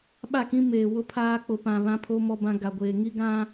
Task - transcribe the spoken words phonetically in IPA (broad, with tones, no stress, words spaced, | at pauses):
ɓa˦˨kĩ˦meː˨wʊ˦ pʰaː˦k͡pʊ˨pã˨ βã˦pʰo˦ mɔ˦bã˦ ɡa˨ɡʷeː˨ ŋi˦ɡã˦